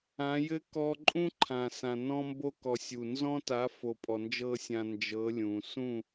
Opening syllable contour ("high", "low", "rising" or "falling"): rising